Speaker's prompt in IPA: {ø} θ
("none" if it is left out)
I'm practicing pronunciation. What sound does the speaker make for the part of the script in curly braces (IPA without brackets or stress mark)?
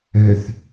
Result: ø